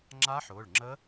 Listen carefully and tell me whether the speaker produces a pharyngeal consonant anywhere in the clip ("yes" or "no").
yes